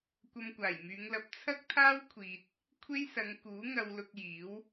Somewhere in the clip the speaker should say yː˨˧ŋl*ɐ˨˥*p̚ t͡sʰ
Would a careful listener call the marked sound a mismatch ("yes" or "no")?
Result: no